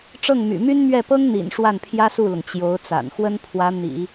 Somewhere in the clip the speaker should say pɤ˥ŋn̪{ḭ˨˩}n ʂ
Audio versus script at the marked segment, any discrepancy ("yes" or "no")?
no